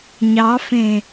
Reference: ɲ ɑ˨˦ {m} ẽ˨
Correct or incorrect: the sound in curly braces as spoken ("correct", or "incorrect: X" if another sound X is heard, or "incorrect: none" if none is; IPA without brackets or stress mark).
incorrect: f